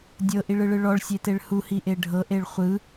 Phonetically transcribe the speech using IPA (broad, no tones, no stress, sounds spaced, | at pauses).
dʲ ɤ ʔ i ɭ ɯ ɭ ɯ ɭ ɔ ɭ sʲ e t e ɭ h u h i ʔ e ɖʱ ɤ ʔ e ɭ χʷ ɯ